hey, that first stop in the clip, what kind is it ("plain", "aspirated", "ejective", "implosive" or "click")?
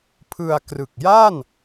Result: aspirated